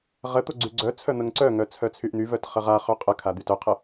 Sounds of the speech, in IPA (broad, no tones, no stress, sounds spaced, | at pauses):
ʁ ə t̪ o ɡ͡ǀ y ɡ͡ǀ œ t͡sʰ œ n̪ ə ŋ ǀ œ ŋ œ t͡sʰ œ t͡sʰ y ʔ n̪ y v œ t χ ə ʁ a χ ø qʼ ə kʰ a d̪ y t œ qʰ ə